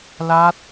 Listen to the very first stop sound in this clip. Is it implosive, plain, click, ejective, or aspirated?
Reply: plain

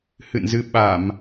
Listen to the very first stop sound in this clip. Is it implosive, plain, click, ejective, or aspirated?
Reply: implosive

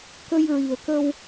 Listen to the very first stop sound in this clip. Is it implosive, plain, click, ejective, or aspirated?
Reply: plain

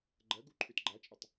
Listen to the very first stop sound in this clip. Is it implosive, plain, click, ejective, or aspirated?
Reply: click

